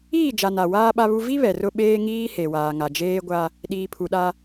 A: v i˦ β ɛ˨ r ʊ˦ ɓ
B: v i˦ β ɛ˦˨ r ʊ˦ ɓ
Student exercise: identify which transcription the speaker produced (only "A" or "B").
A